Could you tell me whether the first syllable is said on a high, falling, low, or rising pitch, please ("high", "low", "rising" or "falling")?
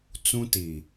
high